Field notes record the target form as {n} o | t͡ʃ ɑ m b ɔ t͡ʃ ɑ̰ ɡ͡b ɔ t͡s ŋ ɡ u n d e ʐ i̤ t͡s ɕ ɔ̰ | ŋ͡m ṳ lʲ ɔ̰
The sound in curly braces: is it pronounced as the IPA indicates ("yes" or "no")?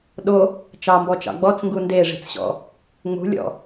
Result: no